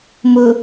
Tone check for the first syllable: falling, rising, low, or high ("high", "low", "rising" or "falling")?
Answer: low